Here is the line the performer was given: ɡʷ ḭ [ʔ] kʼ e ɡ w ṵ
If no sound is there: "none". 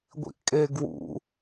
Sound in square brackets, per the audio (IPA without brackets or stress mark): ʔ